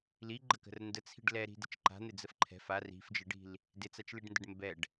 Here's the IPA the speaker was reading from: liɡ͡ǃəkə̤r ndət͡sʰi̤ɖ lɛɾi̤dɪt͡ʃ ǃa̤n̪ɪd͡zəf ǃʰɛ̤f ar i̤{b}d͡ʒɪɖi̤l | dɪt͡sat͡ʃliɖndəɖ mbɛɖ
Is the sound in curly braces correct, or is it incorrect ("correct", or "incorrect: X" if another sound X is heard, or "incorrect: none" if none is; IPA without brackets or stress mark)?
incorrect: f